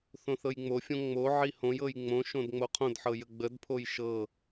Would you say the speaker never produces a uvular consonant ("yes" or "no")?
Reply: no